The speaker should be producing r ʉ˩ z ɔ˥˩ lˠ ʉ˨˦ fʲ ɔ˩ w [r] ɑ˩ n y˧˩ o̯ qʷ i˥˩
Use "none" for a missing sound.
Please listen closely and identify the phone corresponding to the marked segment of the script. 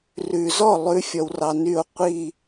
r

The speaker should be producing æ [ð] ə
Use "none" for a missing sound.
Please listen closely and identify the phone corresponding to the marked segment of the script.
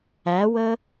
w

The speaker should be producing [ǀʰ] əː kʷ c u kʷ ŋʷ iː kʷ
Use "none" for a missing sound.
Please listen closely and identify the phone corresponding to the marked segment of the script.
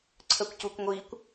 ǀʰ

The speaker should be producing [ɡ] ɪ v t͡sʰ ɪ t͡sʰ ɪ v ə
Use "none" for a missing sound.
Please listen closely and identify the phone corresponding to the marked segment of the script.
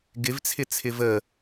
ɡ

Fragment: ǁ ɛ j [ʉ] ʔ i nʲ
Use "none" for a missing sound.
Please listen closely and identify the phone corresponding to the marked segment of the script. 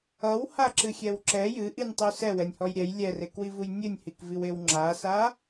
ɨ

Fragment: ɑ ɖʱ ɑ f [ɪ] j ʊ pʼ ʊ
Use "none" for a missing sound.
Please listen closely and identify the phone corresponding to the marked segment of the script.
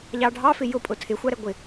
ɪ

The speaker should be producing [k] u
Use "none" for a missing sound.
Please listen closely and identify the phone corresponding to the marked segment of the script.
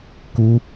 k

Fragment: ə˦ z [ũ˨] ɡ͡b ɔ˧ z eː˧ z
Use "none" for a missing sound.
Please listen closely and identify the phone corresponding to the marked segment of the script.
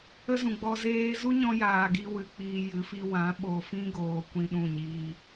ũ˨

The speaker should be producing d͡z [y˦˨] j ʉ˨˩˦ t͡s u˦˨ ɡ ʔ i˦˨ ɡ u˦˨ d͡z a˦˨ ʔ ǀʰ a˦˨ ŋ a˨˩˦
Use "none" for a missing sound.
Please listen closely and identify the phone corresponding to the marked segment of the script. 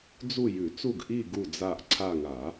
u˦˨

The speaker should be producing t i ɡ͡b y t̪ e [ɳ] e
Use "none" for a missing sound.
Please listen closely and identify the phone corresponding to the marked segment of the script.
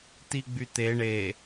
ɳ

